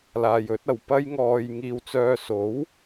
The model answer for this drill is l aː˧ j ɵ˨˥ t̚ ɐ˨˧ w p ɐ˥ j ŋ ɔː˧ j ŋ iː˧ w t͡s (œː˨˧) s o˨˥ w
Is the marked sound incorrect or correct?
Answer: incorrect